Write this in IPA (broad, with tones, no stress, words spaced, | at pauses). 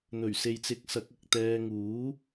n̪ɵ˨˩ɥ se˨jt͡sɪ˨˥k̚ sɐ˨˥k̚ɐ˨k̚t̪ɛː˧ ŋuː˨˥